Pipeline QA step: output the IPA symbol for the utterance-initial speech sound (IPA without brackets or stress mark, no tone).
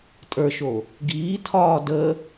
tʼ